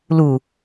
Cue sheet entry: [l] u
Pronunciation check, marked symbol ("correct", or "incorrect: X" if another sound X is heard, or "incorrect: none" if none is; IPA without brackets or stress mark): correct